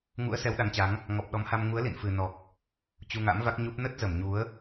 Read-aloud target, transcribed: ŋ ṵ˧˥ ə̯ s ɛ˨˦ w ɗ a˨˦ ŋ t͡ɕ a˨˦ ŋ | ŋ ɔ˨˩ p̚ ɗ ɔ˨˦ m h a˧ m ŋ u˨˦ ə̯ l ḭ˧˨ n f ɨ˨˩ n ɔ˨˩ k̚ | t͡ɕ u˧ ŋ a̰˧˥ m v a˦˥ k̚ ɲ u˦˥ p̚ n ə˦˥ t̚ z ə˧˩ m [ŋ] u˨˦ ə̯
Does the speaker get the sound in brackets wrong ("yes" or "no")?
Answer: yes